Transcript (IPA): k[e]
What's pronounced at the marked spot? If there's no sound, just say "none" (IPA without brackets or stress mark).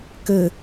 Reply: ɘ